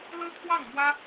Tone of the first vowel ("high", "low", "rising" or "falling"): high